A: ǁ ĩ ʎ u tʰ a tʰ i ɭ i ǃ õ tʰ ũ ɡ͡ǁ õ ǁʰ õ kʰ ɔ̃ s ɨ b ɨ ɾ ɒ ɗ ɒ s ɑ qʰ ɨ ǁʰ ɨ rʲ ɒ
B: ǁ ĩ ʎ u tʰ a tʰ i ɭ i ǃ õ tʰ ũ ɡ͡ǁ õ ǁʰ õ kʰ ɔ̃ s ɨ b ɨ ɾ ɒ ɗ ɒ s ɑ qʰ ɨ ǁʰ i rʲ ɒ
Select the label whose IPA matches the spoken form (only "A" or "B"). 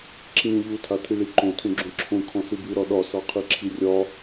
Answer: B